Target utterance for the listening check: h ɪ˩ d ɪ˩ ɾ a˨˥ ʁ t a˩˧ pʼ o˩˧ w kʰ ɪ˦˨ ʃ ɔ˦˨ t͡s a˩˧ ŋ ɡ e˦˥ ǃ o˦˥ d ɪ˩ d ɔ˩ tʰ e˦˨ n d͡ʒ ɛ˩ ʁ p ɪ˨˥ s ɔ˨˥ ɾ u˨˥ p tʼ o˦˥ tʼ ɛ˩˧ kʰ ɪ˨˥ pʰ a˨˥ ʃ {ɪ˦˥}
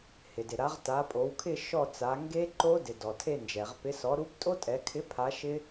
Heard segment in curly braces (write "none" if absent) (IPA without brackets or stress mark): ɪ˦˥